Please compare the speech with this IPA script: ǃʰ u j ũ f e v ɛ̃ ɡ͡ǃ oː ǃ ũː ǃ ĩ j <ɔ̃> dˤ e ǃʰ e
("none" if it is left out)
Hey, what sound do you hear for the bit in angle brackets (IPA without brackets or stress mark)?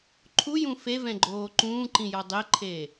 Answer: ɔ